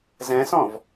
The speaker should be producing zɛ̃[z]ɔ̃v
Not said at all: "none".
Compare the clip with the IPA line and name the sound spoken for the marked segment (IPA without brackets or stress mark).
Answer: s